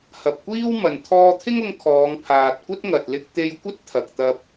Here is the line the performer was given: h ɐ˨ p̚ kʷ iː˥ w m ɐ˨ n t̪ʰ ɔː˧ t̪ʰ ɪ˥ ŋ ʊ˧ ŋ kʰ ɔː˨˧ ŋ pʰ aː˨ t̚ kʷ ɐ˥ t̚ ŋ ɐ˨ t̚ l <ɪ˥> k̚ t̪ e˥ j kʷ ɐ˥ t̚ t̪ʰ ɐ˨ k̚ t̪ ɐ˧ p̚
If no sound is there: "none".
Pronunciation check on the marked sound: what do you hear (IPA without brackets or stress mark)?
ɪ˥